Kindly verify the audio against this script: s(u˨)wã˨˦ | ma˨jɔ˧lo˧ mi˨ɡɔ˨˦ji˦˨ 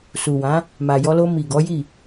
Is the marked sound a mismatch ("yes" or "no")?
no